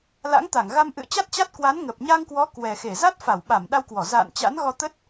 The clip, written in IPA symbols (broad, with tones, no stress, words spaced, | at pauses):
la̰˧˥ŋt̪a˧˩ŋɣa˧m ʔɨ̰˧˨ə̯t͡ɕa˦˥t̚t͡ɕa˦˥t̚ kwa˨˦nŋə˨˩p̚ ɲa˧ŋkwɔ˨˦ kwɛ˨˩xe˧˩ za˦˥t̚fa˧˩wɓa˧˩m ɗa˧wkwɔ˧˩ za̰˧˨n t͡ɕa̰˧˥nɣɔ˧t̪ə˦˥t̚